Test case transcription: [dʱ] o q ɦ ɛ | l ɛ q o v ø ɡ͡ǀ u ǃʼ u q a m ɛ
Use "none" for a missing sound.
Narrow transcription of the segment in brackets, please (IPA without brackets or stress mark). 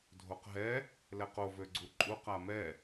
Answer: dʱ